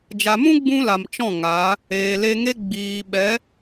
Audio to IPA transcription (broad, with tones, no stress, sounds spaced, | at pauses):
d͡ʒ a˨ m ũ˦ ɡ͡b ũ˧ l a˨ m t͡ʃ ɔ̃˦˨ ŋ a˨˦ | eː˨ l e˧ ŋ e˦ ɡ͡b iː˨ ɓ ɛ˨˦